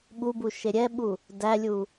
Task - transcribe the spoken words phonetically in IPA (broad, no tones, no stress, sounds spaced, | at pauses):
ɓ u b u ʃ e ɾʲ ɛ ɓ u | d æ lʲ u